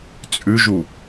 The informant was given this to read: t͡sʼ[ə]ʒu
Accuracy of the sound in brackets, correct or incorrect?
incorrect